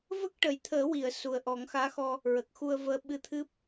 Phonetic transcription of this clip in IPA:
v ə˦˥ k̚ ʈ ə˨˩ j t̪ʰ əː˨˩˦ w i˨˩˨ ə̯ s u˨˩ ə̯ ʔ ɔ˨˩˦ ŋ x aː˧˥ x ɔ˧ | ɹ ə˨˩ k̚ x u˧ ə̯ v əː˧˥ ɓ ɨ˧ t̪ʰ ɨ˦˥ p̚

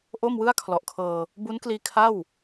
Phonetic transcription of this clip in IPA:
ʔ o˥˩ m w ɯ˥˩ a̯ kʰ l ɔ˨˩ ʔ kʰ ɤː˧ | b u˦˥ n k l iː˧ kʰ a˥˩ w

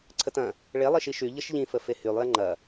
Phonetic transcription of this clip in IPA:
ǀʰ ə t ɐ̃ | ɭ e lˠ i ʃ i ʃ y ʎ ə ʃ ʎ ĩ f ə f e h y lˠ j ɐ ŋ͡ǃ ɐ

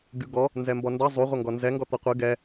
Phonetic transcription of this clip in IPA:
ɡʲ u ɡ ɔ | n z ɛ m b ɔ n d ʌ zˤ u ʁʷ ʌ ŋ ɡ ɔ n z ɛ ŋ ɡ ɔ t̪ ʌ qʷ ɨ ɡ ɛ

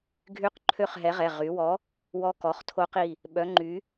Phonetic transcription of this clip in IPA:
ɡʱ y˦˥ q ǃʰ ø˥˧ χ ɦ ɛ˨˥ ʁ ɛ˩˧˩ ʁ y˩˧ w ɔ˨˥ | w ɔ˦˥ k ɔ˩˧˩ χ tʰ o˦˥ q i˩˧˩ | ɓ œ˨˥ ŋ͡ǃ y˨˥

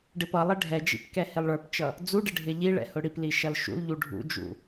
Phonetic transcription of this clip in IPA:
ɖ ɪ p ʌ lˠ ɪ ɖʱ ɛ d͡ʒ ḭ p k ɛ h ɪ lˠ ɭ ə˞ p t͡ʃ ʌ | d͡z u ɖ ɪ ɖʱ ɪ ʎ i ɭ ɛ̰ h ʊ ɽ i p l i ʃ ʌ l ʃ ṵ l ʎ u ɖʱ ṵ d͡ʒ ṵ

